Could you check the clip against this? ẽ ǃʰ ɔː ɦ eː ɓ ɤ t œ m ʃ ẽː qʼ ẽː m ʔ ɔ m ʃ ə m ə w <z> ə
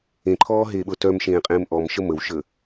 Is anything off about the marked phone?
yes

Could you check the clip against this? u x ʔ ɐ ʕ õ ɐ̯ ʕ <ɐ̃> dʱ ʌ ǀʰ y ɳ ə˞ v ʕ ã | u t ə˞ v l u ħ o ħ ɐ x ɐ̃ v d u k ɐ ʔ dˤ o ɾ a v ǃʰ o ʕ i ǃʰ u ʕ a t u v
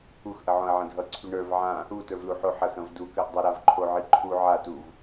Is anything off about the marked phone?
no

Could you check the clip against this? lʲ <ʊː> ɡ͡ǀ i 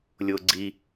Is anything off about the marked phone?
no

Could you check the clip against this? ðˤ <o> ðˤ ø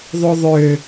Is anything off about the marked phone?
no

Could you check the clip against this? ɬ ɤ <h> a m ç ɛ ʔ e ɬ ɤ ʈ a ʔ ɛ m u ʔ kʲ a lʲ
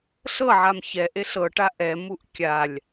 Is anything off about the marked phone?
yes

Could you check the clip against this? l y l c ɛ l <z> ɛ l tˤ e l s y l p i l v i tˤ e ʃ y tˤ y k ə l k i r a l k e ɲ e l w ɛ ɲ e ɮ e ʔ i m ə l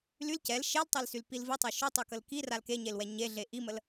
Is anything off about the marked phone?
yes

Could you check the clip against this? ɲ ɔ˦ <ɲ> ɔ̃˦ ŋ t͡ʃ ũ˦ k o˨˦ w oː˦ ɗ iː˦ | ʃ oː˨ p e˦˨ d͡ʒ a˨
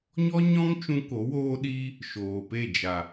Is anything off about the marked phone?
no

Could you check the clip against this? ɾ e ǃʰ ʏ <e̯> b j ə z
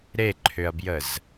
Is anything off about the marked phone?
yes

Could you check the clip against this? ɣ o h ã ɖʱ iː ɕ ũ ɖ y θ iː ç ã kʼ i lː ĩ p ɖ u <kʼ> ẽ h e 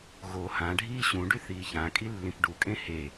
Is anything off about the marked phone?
no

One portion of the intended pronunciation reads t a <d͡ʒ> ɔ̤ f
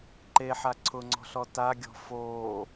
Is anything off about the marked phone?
yes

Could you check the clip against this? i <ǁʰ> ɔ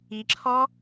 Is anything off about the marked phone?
no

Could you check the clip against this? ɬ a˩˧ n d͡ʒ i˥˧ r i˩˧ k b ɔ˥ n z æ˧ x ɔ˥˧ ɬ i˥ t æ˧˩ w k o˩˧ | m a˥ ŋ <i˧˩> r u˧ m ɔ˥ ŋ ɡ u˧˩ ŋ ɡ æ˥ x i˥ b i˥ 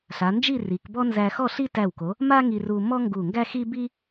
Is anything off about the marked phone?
yes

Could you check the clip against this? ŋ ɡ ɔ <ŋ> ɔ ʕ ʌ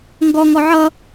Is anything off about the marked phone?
no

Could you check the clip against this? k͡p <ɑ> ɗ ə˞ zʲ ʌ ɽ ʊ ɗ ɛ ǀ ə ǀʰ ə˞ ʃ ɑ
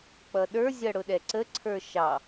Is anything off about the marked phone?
yes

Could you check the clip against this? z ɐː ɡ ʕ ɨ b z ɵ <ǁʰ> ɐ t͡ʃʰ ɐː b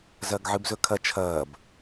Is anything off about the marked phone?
yes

